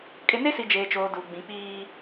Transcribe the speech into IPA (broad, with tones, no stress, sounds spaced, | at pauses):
kʼ ɪ˨ n e˦ s i˨ d͡ʒ eː˨ t͡ʃ oː˨ d u˨ ɡ͡b ĩ˨ k͡p iː˦